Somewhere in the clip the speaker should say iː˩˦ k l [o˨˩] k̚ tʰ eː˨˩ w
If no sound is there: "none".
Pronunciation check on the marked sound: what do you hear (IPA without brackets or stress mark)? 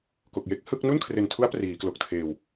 o˨˩